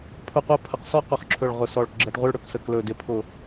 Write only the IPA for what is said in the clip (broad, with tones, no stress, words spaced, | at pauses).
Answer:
pʰʊ˧˩ qʷɜ˥˧pʰə˧˩q sɔ˥˧qʊ˧˩χǁʰɵ˧˩ɭ ʁʊ˧˩sɔ˧˩ɭ ɡ͡ǁɜ˧˩ʈʁʷɪ˥˧ɭɽɵ˧˩ksə˧˩k lɵ˧˩dɪ˧˩pʰʊ˧˩